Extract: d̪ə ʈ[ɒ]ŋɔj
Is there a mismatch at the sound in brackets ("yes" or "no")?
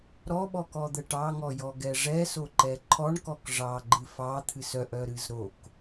yes